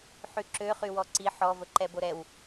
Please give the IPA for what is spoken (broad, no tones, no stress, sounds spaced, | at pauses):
ħ y ǁ ø χ y w ɔ ǀ i ħ ɔ v ə ǃ ɛ b o ɾ ɛ w